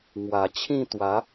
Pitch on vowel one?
low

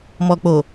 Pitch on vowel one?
low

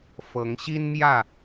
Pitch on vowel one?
rising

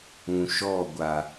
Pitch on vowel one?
low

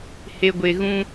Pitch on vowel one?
low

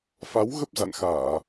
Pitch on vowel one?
rising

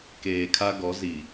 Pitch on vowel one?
low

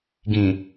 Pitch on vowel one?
low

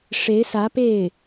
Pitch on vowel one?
rising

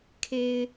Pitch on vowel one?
high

